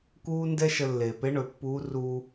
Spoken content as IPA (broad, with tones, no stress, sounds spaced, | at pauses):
k uː˥ n d ɛ˥ ʃ ə˧ lː eː˩ p e˧˥ ɳ ɵ˩˧ pː uː˧˥ r uː˧